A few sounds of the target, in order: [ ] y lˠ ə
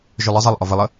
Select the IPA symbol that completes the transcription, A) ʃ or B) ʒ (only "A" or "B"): B